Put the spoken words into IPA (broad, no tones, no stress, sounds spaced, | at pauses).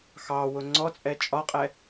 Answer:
x ɑ w ʊ ŋ͡ǀ ɔ t͡sʼ ɛ t͡ʃʼ ɒ qʼ ɛ